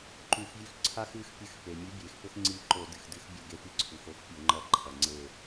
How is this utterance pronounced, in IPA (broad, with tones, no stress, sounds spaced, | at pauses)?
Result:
ǃ ʉ˧˩˧ x vʲ ʉ˦ x ǀʰ a˦ x ɨ˨˥ x pʲ ɨ˧˩˧ x p e˩ mʲ ʉ˨˥ bʲ e˩ x p ɵ˦ x ŋ͡ǀ i˧˩ ǃ o˧˩˧ d ɨ˩ x d ɨ˨˥ x bʲ o˧˩ ɡ e˨˥ p i˧˩˧ ǀʰ u˩ x o˦ x pʲ o˧˩˧ ŋ͡ǃ ɐ˨˥ ǃʰ ɐ˩ ŋ͡ǀ e˧˩